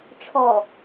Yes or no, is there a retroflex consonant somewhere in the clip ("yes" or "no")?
yes